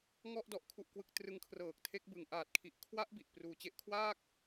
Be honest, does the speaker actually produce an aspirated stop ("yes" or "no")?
yes